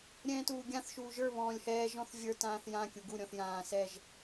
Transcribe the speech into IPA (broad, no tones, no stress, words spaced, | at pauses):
ɾʲɛ̃ːtuːɡʲãθ ʃuːʒə˞ βɔ̃ːlʲhɛːʒ ɔ̃θvʲə˞ tãːθjã kʲuɡu ɾʲɔ̃θjãː sɛʒ